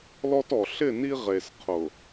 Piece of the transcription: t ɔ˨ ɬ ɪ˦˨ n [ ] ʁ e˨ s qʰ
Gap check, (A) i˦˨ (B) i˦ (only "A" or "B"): B